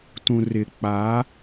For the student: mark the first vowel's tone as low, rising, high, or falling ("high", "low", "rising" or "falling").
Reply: low